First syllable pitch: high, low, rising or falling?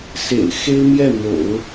low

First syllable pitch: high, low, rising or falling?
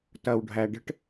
low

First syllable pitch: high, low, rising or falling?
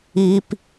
high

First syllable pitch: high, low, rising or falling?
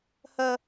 high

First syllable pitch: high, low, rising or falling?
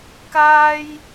high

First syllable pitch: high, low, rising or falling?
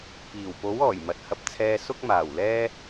low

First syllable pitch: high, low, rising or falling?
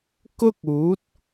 high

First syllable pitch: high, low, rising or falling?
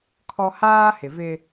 high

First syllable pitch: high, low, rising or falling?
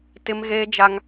high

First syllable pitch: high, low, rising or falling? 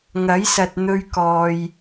rising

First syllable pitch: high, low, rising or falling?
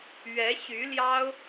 rising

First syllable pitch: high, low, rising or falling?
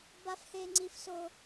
high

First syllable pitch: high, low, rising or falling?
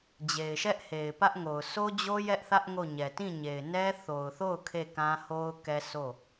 low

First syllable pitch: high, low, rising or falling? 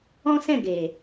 high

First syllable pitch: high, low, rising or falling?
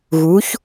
rising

